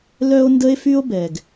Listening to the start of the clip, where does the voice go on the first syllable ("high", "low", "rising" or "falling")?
high